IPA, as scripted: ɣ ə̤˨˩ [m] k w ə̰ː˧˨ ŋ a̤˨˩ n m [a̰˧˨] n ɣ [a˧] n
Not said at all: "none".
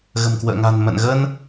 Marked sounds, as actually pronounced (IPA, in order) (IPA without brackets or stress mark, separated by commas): m, ə̰˧˨, ə˧